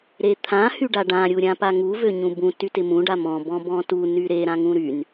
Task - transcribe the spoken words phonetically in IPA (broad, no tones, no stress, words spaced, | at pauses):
ɾet̪ʰã hyɖaɖã ɾʲuɾʲãpaŋu vøɲũbũ tytɪmũ ɖamɔ̃ bɔ̃bɔ̃tu nyɾe ɾãŋũɾyn